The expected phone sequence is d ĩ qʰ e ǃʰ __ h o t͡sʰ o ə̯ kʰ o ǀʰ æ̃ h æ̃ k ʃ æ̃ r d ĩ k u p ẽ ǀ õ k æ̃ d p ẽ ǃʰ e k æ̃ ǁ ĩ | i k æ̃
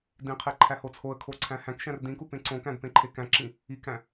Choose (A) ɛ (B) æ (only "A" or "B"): B